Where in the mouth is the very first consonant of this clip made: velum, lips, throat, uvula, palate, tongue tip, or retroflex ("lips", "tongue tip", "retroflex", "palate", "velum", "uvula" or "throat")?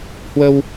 throat